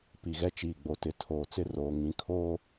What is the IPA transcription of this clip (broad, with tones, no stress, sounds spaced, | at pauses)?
p i˨ ɣ ɛ˦ t͡ʃ iː˨ ɡ͡b o˨ t ɪ˨ tʰ oː˨ t͡s ɪ˦ r oː˨ ŋ ĩ˨˦ kʰ oː˦